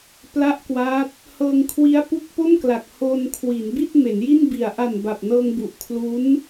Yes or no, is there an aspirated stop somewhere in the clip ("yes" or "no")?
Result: yes